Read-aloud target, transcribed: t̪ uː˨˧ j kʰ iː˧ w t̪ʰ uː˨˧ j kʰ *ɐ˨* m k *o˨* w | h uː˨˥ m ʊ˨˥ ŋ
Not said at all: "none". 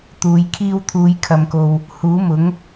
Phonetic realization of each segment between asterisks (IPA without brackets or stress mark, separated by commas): ɐ˨, o˨